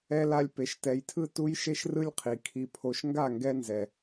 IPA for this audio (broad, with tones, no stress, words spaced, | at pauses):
ɛ˧la˧lʲ pe˨ʃtɛ˨jtʰɯ˧ tu˦jʃe˦ʃrɯ˦lʲqʰi˨ kʰi˨pʰo˨ʃ ŋɡa˦˨ ŋɡɛ˧nzɛ˨